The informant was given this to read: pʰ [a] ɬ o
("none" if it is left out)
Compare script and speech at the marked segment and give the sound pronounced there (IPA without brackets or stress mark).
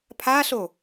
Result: a